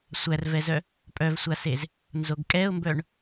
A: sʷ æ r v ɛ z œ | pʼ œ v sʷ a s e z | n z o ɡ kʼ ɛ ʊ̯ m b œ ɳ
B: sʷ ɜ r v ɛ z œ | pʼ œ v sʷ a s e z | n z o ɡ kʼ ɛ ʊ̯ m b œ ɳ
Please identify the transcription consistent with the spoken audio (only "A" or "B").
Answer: A